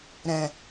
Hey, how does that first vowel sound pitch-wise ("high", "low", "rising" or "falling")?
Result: low